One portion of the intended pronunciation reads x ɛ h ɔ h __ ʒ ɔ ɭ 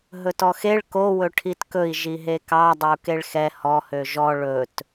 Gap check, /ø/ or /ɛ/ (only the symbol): ø